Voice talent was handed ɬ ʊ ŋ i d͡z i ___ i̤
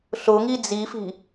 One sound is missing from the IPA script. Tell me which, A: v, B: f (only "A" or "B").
B